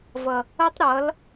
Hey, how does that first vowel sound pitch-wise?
low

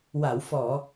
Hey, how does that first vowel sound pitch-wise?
low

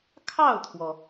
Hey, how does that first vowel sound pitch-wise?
falling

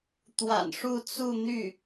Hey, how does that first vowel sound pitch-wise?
low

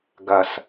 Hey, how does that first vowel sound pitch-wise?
low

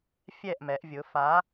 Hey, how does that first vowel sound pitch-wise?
falling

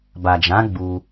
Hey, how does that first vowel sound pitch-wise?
low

